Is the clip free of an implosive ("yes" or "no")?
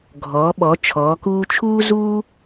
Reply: no